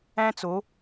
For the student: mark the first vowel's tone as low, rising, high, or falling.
high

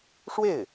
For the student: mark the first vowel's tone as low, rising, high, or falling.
falling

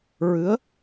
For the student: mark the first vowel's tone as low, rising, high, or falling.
rising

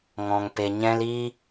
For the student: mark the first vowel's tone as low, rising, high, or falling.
low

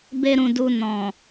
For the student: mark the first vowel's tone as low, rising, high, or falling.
high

